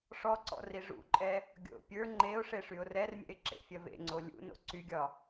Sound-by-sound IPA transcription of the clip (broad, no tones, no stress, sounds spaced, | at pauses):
ʂ ɔ ǀ ɔ̰ r i ʐ ṵ ǃʼ ɛ | ɡʲ o̰ pʲ ə˞ ŋ͡ǃ e ʊ̯ ʂ e ʂ y ʊ̯ r ɛ r mʲ ɛ̰ ɪ̯ ǁ ḛ fʲ ɐ v ḛ ŋ͡ǀ o lʲ ṵ n o̰ ǀ y ɡʲ ɒ